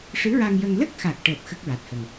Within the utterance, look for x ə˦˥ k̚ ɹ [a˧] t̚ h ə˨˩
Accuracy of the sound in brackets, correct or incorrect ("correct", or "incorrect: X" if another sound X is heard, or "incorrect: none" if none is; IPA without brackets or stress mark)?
incorrect: a˨˩